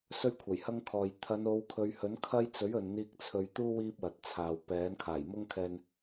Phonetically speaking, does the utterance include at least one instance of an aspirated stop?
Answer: yes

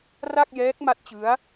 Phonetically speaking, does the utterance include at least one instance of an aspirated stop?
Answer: no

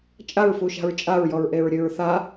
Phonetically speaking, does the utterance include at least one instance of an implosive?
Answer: no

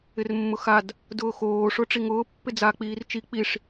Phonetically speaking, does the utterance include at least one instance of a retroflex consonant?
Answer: yes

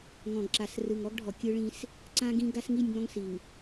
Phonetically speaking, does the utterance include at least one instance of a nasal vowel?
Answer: yes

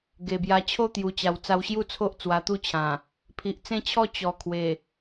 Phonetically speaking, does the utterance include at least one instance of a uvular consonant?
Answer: no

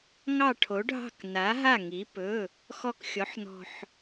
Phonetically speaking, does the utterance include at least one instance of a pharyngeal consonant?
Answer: yes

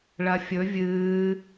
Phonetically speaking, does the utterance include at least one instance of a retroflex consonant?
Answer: yes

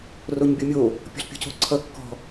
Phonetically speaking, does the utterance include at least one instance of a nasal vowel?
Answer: no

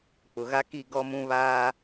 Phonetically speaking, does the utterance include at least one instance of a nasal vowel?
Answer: yes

